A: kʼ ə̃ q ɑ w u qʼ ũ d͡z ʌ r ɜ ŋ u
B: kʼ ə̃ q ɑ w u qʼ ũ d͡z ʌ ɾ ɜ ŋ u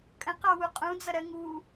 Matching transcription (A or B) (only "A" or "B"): B